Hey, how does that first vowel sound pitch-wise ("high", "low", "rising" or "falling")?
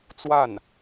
falling